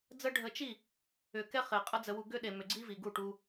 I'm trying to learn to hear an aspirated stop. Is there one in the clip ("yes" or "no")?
no